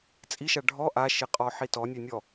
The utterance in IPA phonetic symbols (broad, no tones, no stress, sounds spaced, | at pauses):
t͡sʼ i ʃ a ɖʱ ɔ ʔ a ʃ e qʼ ɔ ħ i t ɔ nʲ ø nʲ ɔ